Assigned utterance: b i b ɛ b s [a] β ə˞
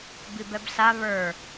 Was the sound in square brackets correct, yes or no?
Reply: yes